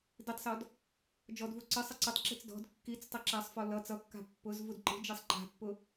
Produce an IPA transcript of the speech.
d i tˤ s ɔ d | d͡ʒ ɔ d v u ǀ ʌ sˤ a ǀ ʌ tˤ ǁ i̤ t͡s d ɔ̤ d kː i t͡s tˤ a ǁ a sˤ f ɔ l ʌ t͡s ʌ kː a̤ pː ʊ z v u d ǃ i̤ d͡ʒ i sˤ ǃ a̤ pː ʊ

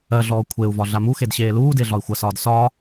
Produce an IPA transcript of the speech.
ɜ ɮ ɔː kʷʰ e u̯ v ɒ ɮ a m u x e d ɕ eː l uː d e ɮ ɒ i̯ xʷ ɐ s ɒː d s ɒː

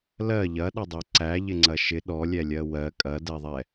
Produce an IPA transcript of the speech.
l ɜ ʎ ɐ ɗ ɐ dˤ ɛ ǀ æ ʎ ɪ ŋ͡ǀ ɐ ʃ ɪ ɗ ɔ lʲ ɛ lʲ ɜ w ɜ kʼ ɐ d ɛ ðˤ ɛ

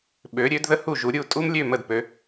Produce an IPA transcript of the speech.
ɓ ø˩˧ ɾʲ ø˩˧ d ð ə˧ h u˧˩ ʒ u˩˧ ɾʲ u˧˩ tʼ u˧ m lʲ ø˧˩ m ə˧˩ d p ø˩˧

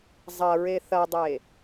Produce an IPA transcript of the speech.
zˤ ɐ ɹ e θ ɐ dˤ e

